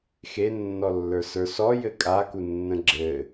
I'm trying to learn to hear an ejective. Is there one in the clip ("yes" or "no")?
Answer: yes